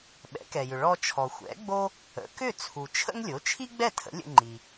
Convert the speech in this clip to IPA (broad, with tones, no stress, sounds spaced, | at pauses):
ɓ ɛ̰˩˥ k ɛ˩ j ʏ˩ ɭ ɔ˧ t͡ʃʰ ɔ˩ xʷ ɛ̰˩˥ ɡ͡b o˥ | ə̰˩˥ k ʏ˥˩ t͡sʰ u˩ t͡ʃʰ ə̰˥ ŋ lʲ o˩˥ t͡ʃʰ i˥ ɡ͡b ɛ˥˩ tʰ ə̰˩˥ lʲ ə̰˧ ŋ͡ǃ i˩